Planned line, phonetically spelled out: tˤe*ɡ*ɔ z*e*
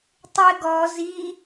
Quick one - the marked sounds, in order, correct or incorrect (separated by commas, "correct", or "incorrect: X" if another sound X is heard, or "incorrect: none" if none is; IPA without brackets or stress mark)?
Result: correct, incorrect: i